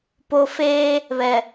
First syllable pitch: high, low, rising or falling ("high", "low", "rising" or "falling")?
low